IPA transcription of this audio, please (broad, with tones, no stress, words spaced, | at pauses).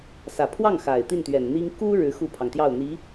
sä˨˩pʰwɑ˥˩ŋxa˨˩ɪ̯ t̪i˥˩nt̪ɥɛ˨˩nn̪i˥ŋ ku˥ ɻɻ̩˧˥xu˥˩pʰɑ˩ŋ t̪jɑ˥˩ʊ̯n̪i˧˥